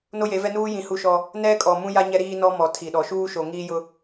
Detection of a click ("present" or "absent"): absent